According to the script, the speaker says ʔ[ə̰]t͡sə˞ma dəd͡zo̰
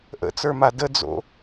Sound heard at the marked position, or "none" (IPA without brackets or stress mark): ə̰